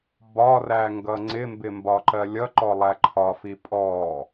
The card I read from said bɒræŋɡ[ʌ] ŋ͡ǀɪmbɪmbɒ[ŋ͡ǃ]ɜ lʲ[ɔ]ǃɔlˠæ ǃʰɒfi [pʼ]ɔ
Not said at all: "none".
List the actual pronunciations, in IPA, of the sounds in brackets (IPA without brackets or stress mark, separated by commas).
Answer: ʌ, ǃ, ʌ, pʼ